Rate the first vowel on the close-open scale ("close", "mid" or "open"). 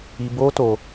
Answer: close